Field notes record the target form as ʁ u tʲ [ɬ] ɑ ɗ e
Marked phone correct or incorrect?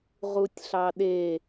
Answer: correct